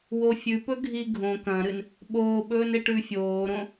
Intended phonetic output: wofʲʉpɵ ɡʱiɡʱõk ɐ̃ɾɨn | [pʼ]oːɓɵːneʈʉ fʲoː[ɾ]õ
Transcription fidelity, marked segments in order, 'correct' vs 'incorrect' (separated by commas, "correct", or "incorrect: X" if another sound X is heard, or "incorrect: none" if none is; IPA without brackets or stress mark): incorrect: ɓ, correct